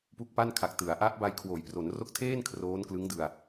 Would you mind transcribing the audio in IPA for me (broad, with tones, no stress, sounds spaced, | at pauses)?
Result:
p u˦˥ k̚ p a˥˩ n kʰ a˨˩ k̚ t ɯ˩˦ a̯ ʔ a˦˥ ʔ b a˧ j kʰ w oː˩˦ j p r o˩˦ n r o˦˥ k̚ tʰ eː˥˩ n kʰ r oː˦˥ n k l ɯ˦˥ ŋ d ɯ˧ a̯